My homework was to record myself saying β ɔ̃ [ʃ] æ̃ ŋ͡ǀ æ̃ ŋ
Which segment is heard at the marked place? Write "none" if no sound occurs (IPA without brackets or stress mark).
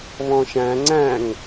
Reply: ʃ